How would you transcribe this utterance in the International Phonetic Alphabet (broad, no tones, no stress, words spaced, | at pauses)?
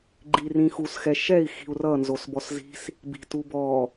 ɡ͡ǃirĩ xusxɛ ʃɛi̯ xi̤u̯rʌnzos bɔszi̤s | bi̤tubɔ